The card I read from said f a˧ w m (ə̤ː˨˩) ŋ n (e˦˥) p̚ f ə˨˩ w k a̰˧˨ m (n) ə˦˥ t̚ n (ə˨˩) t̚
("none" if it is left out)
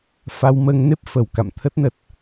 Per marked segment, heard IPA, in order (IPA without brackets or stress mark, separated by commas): əː˧, e˦˥, t̪ʰ, ə˨˩